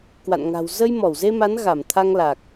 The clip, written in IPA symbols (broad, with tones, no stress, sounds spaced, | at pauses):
k w a̰˧˨ n ŋ a̤˨˩ w z ə˧ j m ɔ˧˩ w z e˧ m a˨˦ n ɣ a˧˩ m t̪ʰ a˧ ŋ l a˨˩ k̚